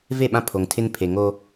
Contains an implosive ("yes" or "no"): yes